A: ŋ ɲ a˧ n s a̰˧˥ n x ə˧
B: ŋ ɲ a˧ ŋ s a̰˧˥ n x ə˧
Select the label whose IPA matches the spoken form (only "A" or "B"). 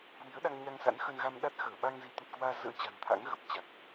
B